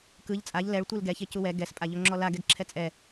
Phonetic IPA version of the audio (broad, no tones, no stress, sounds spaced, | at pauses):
k ɯ ʎ t͡sʼ a ʎ l ɛ ɭ tʷ ɯ l ɡ ɛ ç e c u w ɛ ɡ ɛ s pʼ a ʎ o ŋ͡ǁ ɔ l a ɡ ɛ ɡ ǁʰ ɛ t͡sʼ ɛ